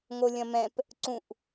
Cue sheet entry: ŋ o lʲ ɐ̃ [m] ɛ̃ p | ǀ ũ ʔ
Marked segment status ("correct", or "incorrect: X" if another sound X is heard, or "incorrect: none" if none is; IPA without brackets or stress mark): correct